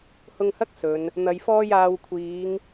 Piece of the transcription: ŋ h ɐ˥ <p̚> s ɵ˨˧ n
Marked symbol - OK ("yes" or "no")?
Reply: no